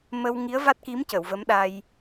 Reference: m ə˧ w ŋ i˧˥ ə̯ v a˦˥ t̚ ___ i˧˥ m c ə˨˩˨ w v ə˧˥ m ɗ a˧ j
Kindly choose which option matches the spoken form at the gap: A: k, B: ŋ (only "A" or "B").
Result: A